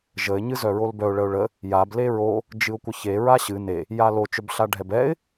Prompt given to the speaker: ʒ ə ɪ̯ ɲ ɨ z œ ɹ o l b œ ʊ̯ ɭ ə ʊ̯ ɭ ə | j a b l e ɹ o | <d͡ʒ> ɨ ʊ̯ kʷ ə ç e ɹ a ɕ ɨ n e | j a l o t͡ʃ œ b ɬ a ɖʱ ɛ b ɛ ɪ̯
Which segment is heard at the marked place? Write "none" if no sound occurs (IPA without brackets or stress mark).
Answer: d͡ʒ